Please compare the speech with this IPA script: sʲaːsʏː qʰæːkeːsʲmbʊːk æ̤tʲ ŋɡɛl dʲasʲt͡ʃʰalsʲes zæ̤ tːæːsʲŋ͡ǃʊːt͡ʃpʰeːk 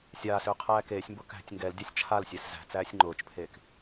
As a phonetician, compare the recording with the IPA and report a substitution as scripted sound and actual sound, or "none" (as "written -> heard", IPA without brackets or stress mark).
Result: tː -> t͡s